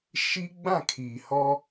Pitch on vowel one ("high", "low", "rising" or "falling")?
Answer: high